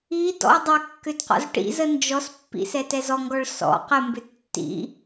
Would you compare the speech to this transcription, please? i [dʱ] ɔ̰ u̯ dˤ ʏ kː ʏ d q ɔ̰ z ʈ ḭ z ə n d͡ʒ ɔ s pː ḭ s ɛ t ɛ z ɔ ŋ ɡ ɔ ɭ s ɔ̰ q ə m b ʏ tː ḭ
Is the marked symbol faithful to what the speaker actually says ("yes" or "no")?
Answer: no